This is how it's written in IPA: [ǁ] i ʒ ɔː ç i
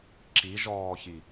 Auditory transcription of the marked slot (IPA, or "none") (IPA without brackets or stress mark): ǁ